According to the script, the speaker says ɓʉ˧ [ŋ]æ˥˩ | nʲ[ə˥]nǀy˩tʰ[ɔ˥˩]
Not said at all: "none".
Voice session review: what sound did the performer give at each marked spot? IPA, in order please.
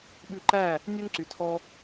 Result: ǃ, ø˥, ɔ˧

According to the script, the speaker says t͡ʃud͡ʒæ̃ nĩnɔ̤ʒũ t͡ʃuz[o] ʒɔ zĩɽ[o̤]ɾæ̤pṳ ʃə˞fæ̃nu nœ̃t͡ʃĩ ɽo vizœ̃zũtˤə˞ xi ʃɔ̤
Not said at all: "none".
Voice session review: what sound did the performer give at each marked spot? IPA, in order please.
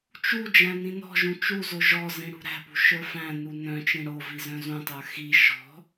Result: o, ṳ

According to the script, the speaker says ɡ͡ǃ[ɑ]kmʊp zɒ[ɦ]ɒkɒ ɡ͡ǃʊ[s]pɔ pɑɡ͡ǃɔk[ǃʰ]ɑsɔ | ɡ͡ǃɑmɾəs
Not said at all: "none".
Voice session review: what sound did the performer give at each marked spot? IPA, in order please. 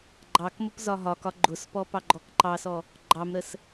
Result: ɑ, ɦ, s, ǃ

